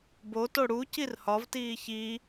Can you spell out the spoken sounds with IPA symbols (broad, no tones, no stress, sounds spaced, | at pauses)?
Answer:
b o t o ɽ u c i r h ɒ v t iː ç i